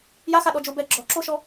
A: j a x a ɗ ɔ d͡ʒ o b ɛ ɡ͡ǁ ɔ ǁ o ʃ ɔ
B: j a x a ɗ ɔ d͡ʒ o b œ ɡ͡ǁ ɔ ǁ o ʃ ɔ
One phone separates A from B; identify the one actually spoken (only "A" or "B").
A